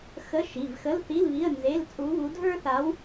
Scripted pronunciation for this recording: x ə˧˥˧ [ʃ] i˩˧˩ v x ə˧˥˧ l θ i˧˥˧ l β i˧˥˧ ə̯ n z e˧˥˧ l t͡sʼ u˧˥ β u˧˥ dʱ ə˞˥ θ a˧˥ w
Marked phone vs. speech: correct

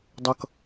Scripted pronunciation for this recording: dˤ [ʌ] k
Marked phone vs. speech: correct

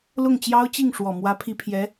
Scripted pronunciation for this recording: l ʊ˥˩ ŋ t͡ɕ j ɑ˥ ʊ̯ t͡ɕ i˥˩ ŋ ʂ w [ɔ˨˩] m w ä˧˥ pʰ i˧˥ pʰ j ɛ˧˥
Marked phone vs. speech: correct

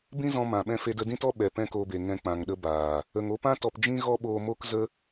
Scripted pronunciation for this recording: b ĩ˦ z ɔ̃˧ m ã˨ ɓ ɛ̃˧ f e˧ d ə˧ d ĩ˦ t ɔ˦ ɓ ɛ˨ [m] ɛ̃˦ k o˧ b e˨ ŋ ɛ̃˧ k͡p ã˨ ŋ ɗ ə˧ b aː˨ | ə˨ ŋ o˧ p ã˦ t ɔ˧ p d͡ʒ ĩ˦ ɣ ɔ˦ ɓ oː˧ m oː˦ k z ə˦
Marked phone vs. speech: incorrect: p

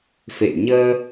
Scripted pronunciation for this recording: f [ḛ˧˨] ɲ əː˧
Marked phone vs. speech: correct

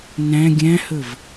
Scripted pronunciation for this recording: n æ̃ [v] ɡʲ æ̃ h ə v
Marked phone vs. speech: incorrect: none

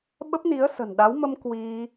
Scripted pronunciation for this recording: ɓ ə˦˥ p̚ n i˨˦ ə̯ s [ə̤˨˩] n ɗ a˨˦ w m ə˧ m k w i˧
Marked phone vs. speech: correct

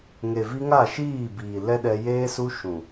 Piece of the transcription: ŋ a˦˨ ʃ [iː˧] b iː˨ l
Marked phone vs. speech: incorrect: iː˦˨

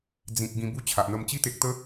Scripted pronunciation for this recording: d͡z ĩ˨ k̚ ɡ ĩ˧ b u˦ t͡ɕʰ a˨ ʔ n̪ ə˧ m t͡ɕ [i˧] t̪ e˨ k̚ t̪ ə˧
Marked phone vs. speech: correct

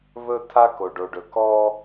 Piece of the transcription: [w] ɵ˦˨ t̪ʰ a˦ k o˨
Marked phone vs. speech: incorrect: β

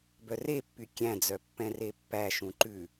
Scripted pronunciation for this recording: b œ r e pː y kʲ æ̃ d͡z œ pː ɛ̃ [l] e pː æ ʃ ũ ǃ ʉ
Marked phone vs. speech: incorrect: r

